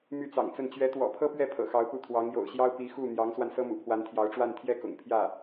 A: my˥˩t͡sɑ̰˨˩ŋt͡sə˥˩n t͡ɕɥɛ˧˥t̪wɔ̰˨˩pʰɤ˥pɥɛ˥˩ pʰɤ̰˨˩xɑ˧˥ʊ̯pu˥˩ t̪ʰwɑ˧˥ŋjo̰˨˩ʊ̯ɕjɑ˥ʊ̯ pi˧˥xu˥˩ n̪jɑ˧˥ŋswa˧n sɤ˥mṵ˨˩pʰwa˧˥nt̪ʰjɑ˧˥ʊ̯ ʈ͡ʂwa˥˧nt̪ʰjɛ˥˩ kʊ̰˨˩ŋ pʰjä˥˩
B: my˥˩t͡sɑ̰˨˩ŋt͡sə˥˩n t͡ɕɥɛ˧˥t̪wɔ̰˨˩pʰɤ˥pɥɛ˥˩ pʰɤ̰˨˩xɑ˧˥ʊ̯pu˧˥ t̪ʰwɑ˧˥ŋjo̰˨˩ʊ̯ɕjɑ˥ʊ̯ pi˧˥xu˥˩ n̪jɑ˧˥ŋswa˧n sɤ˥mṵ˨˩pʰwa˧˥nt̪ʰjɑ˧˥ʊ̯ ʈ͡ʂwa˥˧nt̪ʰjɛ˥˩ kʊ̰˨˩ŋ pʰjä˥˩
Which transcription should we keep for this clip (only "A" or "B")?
A